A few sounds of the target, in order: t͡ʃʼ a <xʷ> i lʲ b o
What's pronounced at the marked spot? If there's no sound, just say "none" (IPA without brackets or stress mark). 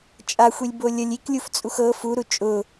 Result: xʷ